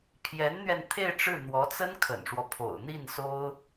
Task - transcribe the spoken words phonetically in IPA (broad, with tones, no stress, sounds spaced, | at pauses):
pʰ j ɛ˧˥ n n̪ ɥ ɛ˧ n t̪ʰ e˥˧ ɪ̯ ʈ͡ʂ ɻ̩˥˩ n̪ w ɔ˧˥ t͡s ə˥ n kʰ ə̰˨˩ n ʂ w ɔ˦ pʰ o̰˨˩ ʊ̯ n̪ i˥˩ n s o˥ ʊ̯